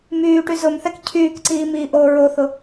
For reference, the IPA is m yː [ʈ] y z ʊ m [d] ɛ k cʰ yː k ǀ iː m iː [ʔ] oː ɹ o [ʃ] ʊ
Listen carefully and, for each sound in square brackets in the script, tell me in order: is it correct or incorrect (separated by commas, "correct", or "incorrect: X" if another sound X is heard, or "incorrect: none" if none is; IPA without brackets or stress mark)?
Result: correct, incorrect: θ, correct, incorrect: θ